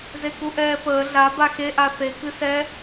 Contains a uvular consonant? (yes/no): no